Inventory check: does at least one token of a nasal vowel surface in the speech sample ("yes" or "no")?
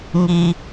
no